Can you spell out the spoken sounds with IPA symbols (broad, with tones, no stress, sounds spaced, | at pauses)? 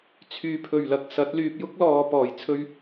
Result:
t͡sʰ yː˨ pʰ ɵ˨˩ ɥ l ɐ˨ k̚ s ɐ˨˥ t̚ l yː˧ p̚ j ʊ˥ k̚ l ɔː˨ p ɔː˨˩ j t͡sʰ ɵ˧ ɥ